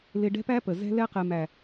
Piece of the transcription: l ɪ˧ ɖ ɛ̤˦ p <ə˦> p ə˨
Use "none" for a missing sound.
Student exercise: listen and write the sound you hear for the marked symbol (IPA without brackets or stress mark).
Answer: æ˦